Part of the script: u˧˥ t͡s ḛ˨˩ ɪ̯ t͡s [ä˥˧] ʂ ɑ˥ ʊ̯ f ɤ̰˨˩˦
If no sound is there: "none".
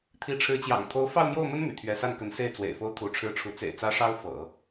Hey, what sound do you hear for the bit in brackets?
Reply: ä˥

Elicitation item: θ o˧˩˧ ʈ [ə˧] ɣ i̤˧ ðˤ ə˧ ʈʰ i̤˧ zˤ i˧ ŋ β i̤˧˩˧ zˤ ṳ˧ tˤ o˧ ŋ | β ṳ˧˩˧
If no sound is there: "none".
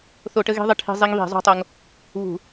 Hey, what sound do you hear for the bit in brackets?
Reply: ə˧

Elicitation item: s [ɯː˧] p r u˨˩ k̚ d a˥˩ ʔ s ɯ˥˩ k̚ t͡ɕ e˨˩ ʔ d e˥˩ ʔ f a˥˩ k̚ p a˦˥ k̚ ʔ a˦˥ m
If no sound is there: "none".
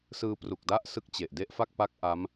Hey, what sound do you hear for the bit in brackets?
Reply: ɯː˧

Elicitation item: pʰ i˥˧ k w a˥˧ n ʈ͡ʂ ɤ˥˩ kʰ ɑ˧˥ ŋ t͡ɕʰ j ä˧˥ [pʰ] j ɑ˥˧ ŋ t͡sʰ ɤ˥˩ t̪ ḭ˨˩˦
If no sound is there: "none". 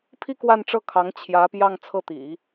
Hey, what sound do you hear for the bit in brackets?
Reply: p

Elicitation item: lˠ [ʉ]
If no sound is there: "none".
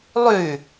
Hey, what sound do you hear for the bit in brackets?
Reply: ʉ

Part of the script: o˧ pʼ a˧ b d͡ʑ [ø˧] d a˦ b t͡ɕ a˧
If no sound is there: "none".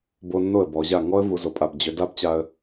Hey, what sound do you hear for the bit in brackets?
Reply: ø˧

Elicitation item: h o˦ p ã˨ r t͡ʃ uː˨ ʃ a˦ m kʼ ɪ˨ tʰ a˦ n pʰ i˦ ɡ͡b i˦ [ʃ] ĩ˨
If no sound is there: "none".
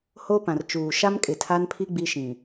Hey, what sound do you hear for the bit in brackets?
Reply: ʃ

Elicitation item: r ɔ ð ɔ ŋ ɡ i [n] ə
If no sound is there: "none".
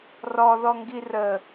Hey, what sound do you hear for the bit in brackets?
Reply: r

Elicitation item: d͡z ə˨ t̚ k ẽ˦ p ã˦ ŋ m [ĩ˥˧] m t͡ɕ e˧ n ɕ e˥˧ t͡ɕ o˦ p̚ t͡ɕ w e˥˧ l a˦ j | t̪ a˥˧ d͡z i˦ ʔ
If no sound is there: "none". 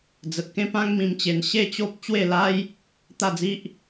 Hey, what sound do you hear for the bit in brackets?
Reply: ĩ˧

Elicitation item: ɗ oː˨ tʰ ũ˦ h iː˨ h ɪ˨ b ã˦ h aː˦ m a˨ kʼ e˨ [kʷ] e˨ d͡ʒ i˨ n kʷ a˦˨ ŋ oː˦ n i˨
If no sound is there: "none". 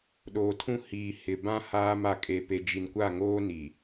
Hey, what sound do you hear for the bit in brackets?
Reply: p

